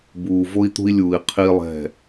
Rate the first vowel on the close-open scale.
close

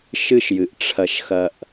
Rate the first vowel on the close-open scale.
close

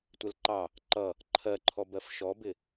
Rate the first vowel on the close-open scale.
mid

